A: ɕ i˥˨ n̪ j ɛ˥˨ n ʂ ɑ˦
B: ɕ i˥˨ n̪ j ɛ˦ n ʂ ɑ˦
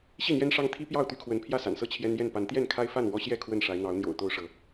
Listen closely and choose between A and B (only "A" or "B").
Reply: B